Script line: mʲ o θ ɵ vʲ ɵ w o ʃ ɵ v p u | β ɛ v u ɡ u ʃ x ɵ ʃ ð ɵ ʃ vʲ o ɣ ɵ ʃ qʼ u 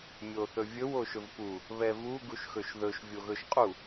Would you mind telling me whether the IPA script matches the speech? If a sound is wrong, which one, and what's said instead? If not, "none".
none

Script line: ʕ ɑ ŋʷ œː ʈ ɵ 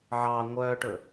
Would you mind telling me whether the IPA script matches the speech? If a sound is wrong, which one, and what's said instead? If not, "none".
none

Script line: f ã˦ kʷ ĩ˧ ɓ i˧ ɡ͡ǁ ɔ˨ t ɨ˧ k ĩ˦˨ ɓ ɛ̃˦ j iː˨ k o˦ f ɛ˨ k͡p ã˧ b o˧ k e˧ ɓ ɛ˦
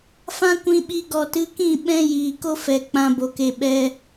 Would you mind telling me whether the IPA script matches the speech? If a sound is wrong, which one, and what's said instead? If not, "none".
ɡ͡ǁ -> ɡ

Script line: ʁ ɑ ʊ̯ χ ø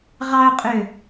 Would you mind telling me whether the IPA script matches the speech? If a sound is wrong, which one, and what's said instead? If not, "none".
χ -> qʼ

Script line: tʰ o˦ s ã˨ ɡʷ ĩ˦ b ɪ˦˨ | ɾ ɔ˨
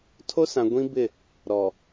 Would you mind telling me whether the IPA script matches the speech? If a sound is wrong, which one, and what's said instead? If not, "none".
none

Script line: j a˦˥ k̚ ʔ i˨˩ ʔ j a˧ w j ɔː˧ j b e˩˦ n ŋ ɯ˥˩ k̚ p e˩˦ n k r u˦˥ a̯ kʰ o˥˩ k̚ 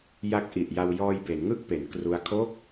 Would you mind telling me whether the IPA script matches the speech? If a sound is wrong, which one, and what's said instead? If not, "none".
none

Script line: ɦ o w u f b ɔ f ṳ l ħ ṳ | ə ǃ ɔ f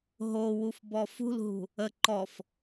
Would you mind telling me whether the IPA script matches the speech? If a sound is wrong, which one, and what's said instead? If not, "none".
ħ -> ɦ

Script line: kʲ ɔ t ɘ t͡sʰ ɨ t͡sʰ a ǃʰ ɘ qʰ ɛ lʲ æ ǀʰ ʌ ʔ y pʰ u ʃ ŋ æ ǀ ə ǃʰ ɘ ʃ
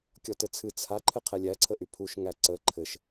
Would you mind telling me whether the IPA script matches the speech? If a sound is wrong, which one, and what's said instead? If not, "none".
ʌ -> ə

